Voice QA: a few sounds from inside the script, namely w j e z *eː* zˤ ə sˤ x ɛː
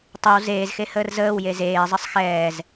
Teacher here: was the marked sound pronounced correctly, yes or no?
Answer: yes